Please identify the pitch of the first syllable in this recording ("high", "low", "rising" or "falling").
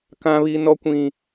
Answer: high